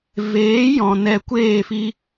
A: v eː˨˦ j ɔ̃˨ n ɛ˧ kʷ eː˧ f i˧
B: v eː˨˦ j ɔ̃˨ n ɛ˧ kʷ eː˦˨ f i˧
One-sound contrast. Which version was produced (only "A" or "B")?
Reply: B